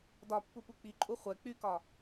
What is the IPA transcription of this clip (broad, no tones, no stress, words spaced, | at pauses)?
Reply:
dɒpːu puk͡piǃʼu χʷɛ k͡pykɒ